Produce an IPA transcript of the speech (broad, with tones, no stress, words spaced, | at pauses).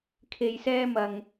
kʰe˧jsɛː˥ mɐ˨ŋ